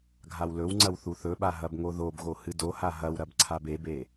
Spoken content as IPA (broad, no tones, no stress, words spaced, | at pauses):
ɡʱawlɵwŋ͡ǀɐw θuθɵɓa ɦɐbŋoðobɣo hɨdoha ɦɐwɾɐb ǀʰabebe